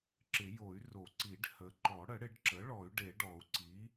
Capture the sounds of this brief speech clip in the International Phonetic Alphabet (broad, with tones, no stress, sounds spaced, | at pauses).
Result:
ǁ ɪ˨˩˦ j o˨˩˦ y̯ r o˨˩˦ ǀ i˨˩˦ ɖ h ə˩˥ ǃ ɔ˨˩˦ ɽ ə˨˩˦ ɽ ɪ˨˩˦ ɖ ǁ ə˩˥ ɭ ɔ˨˩˦ y̯ ɖ e˨˩˦ ɖ ɔ˨˩˦ u̯ ǀ i˩˥